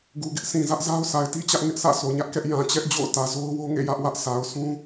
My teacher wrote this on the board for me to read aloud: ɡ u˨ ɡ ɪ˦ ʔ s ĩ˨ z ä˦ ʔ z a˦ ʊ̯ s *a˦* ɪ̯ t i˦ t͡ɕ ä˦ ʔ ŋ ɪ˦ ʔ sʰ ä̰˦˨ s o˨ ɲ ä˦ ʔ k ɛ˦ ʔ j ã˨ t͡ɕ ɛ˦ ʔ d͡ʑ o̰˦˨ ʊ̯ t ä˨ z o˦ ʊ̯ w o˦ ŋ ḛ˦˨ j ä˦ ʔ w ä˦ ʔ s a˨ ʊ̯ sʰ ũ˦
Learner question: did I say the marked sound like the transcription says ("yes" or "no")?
no